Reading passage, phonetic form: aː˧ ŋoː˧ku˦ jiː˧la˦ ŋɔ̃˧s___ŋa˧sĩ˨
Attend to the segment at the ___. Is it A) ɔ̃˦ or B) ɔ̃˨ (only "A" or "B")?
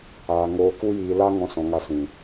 B